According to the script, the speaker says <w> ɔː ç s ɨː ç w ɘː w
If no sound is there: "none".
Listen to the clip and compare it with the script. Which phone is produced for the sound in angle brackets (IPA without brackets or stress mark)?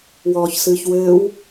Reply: w